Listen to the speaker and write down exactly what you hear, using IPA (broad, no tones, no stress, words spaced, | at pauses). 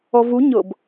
ɔvu ɲɤb